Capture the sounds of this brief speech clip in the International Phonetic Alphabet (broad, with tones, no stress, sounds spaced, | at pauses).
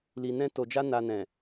l i˨ n ɛ̃˧ t o˨ d͡ʒ a˧ n a˨ n ɛ̃˨